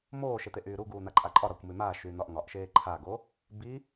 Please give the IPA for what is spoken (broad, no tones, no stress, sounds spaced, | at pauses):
m oː ʃ e t̪ e ʔ yː ɾ u ɡ uː n̪ a ǃʼ a ǃʼ ɒ ɾ ɒ kʷ m y m aː ʃ yː n̪ ɒ ʔ ŋ ɒ ʔ ʃ eː ǃʰ a ɡ o | b i